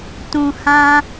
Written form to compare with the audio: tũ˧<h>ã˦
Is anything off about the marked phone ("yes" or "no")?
no